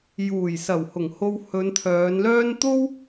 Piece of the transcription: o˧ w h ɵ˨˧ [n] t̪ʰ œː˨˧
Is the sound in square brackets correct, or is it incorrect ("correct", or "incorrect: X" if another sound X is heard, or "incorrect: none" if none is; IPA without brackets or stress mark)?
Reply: correct